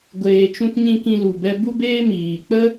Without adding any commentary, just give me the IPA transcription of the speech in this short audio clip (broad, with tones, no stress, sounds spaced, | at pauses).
ɡʷ eː˨ t͡ʃ ũ˦ t ɲ ĩ˦ k ĩ˧ l u˨ b ɛ˧ b u˦ b eː˦ m iː˨ k͡p ə˦